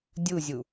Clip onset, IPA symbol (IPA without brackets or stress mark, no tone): dʲ